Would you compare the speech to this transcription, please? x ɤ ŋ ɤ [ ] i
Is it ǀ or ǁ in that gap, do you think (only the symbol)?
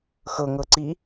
ǀ